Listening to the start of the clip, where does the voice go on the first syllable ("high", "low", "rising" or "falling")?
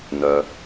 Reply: low